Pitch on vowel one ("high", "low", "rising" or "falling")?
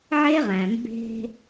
high